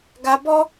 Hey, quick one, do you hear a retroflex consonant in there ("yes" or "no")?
no